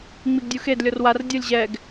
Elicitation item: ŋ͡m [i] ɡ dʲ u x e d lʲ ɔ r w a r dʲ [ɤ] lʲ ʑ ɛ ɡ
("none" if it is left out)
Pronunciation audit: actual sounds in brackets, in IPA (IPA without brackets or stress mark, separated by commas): i, ɤ